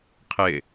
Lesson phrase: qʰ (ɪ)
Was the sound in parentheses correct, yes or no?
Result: yes